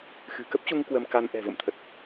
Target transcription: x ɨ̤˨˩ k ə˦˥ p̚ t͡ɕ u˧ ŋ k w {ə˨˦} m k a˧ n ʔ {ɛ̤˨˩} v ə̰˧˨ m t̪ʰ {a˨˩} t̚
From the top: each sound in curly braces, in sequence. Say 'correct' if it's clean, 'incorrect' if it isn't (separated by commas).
incorrect, correct, incorrect